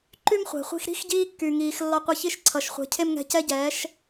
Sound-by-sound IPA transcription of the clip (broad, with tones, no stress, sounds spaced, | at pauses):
ǃ y˥ m χʷ ɛ̤˩ χʷ i̤˧ x ɾ i̤˥ x ɟ iː˧ kː y˩ ŋ iː˩ x lː ɒ˧ qʷ ɘ˧ ç i˥˩ ʃ ǀʰ ʌ˩ ʃ χʷ ɛ̤˩˥ cʰ e˥ m ŋ ɛ̤˧ c ɛ˥ ɟ ɛː˩˥ ʃ